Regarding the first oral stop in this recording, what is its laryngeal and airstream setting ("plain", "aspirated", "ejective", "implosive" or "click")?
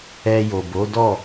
plain